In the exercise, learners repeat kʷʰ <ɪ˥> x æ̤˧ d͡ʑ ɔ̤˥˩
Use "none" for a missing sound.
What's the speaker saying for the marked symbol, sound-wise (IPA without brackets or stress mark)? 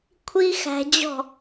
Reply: i˥